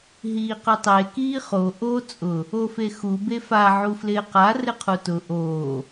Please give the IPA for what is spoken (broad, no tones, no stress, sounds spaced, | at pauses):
ɦ iː q ʊ tˤ e k iː χ o ʔ o t͡sʼ ʊ | o f e x u b e f a ʕ u f l ɪː q a r ɪ qʰ u t ʊ ʔ oː